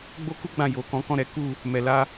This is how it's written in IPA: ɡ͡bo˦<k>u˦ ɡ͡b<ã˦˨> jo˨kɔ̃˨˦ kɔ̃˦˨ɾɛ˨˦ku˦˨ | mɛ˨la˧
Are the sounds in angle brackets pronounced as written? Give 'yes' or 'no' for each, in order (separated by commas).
yes, yes